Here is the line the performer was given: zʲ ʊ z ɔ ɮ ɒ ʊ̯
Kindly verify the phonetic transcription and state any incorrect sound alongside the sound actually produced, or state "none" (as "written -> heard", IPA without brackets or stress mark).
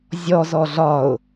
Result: ʊ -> ɔ